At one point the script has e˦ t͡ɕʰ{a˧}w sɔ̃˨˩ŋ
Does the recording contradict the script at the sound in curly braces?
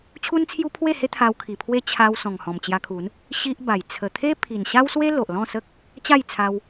no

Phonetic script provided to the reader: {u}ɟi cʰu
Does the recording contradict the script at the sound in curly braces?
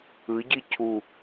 yes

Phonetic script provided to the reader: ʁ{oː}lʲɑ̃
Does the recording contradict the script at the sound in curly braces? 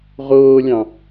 no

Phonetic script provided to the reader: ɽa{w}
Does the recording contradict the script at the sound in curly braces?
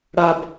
yes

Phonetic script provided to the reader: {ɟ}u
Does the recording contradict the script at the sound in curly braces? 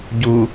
no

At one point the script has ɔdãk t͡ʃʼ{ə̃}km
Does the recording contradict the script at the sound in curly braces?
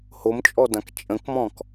no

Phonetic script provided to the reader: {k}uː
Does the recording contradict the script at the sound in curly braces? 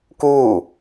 no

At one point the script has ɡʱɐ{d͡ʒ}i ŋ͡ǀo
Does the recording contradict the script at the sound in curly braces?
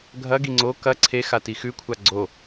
yes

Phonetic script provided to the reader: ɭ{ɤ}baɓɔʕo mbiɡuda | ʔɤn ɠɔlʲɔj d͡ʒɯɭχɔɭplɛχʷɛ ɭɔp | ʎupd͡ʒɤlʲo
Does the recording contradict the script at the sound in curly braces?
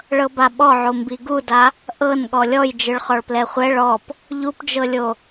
no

